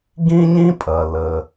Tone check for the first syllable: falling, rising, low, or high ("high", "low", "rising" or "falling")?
high